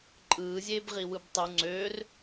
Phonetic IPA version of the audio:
ǃʼ ɯː zʲ eː b ʁ i w ɯ b tˤ u ŋ͡ǀ øː r

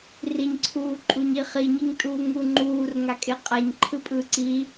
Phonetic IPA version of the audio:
r i ɲ ǀʰ uː ǃʼ u ɲ i χ i ɲ i ŋ tʼ uː ŋ u ŋ͡ǃ uː r ŋ a kʼ e qʼ a ɲ ǃʰ ɯ pʼ ɯ ǀ i

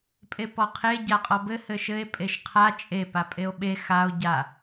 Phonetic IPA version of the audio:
pʼ e p ɔ qʰ e ɟ a qʼ ɔ b ɘ h ɘ ʃ ɘ e̯ pʼ e ʃ qʰ a t͡ʃʼ e p a pʼ e o̯ ɓ e x a o̯ ɟ a

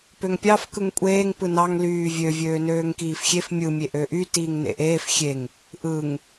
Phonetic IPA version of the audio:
p ø ŋ pʲ ɑ f k ɯ ŋ kʷʼ eː ŋ p ɯ n ɑ ŋ l yː vʲ ø vʲ øː n øː ŋ k iː f xʲ e f mʲ ɯ mʲ e ʔ ø ʔ y t iː ŋ n ḛ ʔ eː f xʲ e ŋ | ʔ ɯ ŋ

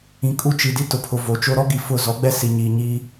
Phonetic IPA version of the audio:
ĩ˨ kʼ u˦ t͡ʃ i˨ d i˦ t ʊ˨ pʰ ʊ˨ v o˨ t͡ʃ o˦ ɾ ɔ˦ ɡ i˨ f ʊ˦˨ z ɔ˨˦ ɡ͡b ɛ˦ s i˨ ɲ iː˨ ɲ iː˦

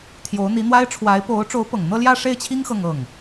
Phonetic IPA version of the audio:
t̪ʰ j o˧˥ ʊ̯ n̪ i˧˥ n̪ w a˥ ɪ̯ ʈ͡ʂʰ w a˧˥ ɪ̯ p o˧˥ ʊ̯ ʈ͡ʂ o˧˥ ʊ̯ p ɤ˨˩ ŋ n̪ ɤ˥˧ l j ä˥˧ ʂ e˥˩ ɪ̯ t͡ɕʰ i˥ ŋ x ɤ˥˧ ŋ ɤ˥˩ ŋ

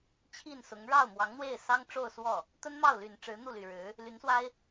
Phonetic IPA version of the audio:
t͡ɕʰ i˥˩ n s ʊ˧˥ ŋ ɻ ɑ˥˩ ʊ̯ m w ɑ˧˥ ŋ n̪ w e˥˩ ɪ̯ s ɑ˥ ŋ ʈ͡ʂ o˥˧ ʊ̯ s w ɔ˥˩ | t̪ ə˥ n m ɑ˥˩ ʊ̯ l y˨˩ n ʈ͡ʂ ɻ̩˧˥ n̪ u˥˩ l y˨˩ ɻ ɻ̩˧˥ | l y˧˥ n s w a˥ ɪ̯

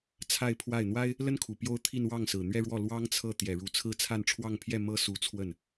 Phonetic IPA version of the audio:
t͡sʰ a˥˧ ɪ̯ pʰ w a˥˩ ɪ̯ n̪ w a˥ ɪ̯ | l ə˥ n kʰ u˨˩ p j o˥ ʊ̯ t̪ʰ i˥˧ n w ɑ˥˩ ŋ s ɹ̩˨˩ n̪ ɥ ɛ˥˧ ɻ w ɔ˥˩ l w ɑ˥ ŋ t͡sʰ ɤ˥˩ t̪ j ɛ˨˩ ɻ u˧˥ t͡sʰ ɹ̩˥˧ t͡sʰ a˥˧ n ʈ͡ʂʰ w ɑ˥˧ ŋ pʰ j ɛ˥˩ m ɤ˥ s u˧˥ t͡sʰ w ə˥˩ n

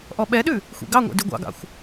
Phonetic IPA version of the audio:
ʔ ɔ ɓ ɛ ɗ ʉ | xʷ ḭ ɡ ɑ ŋʷ ɛ̰ d y ɡʷ ɑ̰ ɡ ɑ̰ xʷ

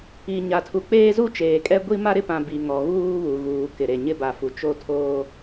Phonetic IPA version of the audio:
i˨ ɲ a˨ tʰ u˨ k͡p eː˦ z u˦ t͡ʃ eː˨ kʼ ɛ˦ ɡʷ i˦ m a˦ ɾ ɪ˦ p ã˨ b i˨ ŋ ɔ˨ ɣ uː˦ β u˨ ɣ uː˨ k ɪ˨ ɾ e˨ ɲ ɪ˦ b a˨ f u˨ t͡ʃ o˦ tʰ oː˦

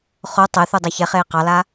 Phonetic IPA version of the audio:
χ o tˤ e θ u dˤ a ç ɛ χ eː q ɑ l a

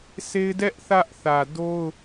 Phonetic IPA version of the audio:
sʰ e˦ ɪ̯ d ɛ˦ ʔ θ ä˦ ʔ θ ä˨ d o˦ ʊ̯

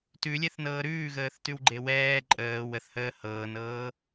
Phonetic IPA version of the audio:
t ʉ lʲ ɛ θ n ɤː ɾ ʉː ɣ əː θ t ʉ w ɡ͡ǃ e w ɛː ǃʼ əː w ə θ h əː h ɤː n ɤː

